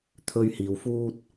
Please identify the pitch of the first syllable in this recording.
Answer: high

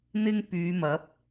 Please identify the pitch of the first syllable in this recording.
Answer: high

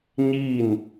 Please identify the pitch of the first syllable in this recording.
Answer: falling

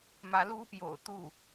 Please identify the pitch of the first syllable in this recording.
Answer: rising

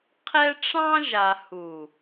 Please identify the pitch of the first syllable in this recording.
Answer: high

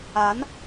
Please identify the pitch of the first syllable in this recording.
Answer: rising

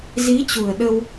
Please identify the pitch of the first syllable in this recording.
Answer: rising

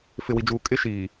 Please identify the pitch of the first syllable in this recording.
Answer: low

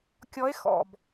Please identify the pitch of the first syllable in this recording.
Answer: rising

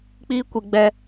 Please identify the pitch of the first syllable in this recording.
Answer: high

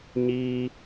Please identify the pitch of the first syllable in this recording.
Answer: high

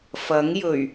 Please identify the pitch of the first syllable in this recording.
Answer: rising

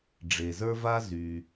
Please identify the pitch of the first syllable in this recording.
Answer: low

